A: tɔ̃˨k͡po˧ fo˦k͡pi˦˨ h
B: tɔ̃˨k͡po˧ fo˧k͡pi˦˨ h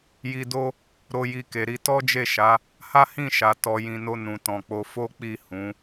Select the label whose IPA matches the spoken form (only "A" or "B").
A